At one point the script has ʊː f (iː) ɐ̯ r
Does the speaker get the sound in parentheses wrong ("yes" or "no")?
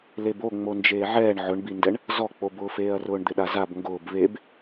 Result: yes